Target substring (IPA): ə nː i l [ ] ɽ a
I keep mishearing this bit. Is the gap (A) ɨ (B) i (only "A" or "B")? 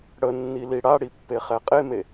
B